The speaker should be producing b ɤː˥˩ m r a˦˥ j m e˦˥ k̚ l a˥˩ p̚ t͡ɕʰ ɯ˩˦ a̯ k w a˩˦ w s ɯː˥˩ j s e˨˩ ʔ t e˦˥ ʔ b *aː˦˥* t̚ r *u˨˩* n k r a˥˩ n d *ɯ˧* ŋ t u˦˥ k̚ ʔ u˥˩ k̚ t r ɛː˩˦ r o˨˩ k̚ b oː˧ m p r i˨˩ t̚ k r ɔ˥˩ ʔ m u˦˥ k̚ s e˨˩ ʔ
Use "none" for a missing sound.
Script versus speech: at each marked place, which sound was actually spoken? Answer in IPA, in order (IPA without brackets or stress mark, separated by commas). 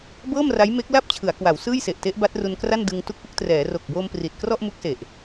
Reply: a˦˥, u˧, ɯ˧